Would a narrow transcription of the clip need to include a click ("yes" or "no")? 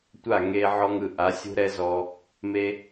no